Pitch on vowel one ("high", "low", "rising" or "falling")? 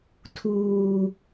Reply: high